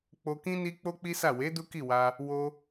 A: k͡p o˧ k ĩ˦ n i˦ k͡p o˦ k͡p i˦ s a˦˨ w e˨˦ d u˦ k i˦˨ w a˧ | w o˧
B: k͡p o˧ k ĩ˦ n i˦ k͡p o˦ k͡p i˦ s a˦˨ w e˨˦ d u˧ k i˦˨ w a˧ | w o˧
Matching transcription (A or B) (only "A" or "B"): A